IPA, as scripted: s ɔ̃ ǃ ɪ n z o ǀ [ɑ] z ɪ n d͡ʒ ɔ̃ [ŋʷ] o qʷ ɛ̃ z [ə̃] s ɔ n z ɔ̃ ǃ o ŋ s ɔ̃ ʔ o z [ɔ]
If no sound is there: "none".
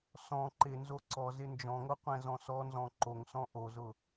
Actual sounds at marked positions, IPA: ɔ, ŋ, ɔ̃, ʊ

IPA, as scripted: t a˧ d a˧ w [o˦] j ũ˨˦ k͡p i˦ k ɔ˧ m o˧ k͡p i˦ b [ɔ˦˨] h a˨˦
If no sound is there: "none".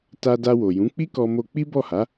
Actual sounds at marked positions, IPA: o˨, ɔ˦˨

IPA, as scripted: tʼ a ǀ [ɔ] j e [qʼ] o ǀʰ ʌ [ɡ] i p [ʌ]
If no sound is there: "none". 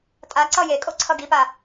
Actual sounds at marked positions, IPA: ʌ, kʼ, ɡ, a

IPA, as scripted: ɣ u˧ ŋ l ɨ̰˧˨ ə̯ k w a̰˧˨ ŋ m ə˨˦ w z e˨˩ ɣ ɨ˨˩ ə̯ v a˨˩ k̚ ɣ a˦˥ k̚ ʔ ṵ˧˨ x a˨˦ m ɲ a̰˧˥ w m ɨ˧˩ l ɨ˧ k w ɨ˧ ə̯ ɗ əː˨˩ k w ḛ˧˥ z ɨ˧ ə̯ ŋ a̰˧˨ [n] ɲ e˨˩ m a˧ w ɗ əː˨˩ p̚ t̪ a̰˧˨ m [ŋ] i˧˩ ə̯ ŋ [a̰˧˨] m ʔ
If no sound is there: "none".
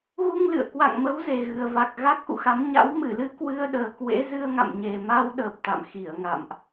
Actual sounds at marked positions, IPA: m, x, a̰˧˨

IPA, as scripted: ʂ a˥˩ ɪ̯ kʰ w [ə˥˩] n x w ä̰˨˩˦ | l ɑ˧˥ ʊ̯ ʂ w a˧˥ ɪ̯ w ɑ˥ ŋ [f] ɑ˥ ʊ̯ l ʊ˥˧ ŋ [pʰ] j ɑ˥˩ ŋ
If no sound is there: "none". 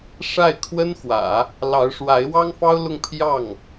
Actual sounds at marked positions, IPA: ə˥, f, pʰ

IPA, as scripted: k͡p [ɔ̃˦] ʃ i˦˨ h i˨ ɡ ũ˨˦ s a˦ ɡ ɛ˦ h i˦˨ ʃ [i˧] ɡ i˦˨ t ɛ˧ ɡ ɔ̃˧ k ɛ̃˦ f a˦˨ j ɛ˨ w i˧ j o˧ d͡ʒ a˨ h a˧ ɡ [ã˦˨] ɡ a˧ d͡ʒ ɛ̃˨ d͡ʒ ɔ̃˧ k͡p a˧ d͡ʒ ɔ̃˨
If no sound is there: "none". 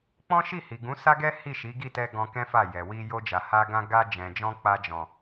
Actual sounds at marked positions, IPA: ɔ̃˦, i˨˦, ã˧

